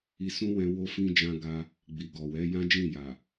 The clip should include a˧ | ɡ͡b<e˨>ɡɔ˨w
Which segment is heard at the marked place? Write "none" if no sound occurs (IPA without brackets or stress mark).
i˨